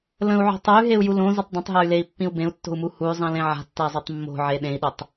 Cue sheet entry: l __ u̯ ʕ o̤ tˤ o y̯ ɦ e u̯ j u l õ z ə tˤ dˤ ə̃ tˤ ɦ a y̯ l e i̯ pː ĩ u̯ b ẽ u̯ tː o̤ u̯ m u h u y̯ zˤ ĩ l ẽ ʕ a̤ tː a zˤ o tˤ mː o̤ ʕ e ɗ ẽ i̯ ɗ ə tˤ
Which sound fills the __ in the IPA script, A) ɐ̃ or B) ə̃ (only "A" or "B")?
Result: B